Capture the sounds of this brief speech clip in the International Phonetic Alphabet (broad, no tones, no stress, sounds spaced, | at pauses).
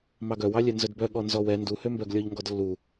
m ɑ ɡ œ w ɑ lʲ ɛ n z œ d b œ ɠ ɔ n z ɔ w ɛ n d u h ø m b œ ɡ lʲ ɔ ʎ ŋ ɡ ɔ d lː u